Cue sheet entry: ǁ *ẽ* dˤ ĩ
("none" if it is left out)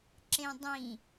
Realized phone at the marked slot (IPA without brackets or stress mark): ẽ